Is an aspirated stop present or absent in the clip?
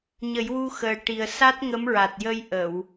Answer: absent